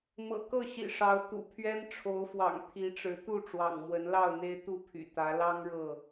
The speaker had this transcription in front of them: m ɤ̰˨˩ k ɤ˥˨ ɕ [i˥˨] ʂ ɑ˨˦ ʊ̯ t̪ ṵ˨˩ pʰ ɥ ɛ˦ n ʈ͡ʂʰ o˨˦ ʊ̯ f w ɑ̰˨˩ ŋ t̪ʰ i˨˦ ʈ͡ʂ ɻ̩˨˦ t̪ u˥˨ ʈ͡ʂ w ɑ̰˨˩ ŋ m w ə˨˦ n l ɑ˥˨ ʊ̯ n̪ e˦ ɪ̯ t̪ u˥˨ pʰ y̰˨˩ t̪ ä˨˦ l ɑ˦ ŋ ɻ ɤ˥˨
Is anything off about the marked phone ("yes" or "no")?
yes